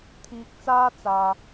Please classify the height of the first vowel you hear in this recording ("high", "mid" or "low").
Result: high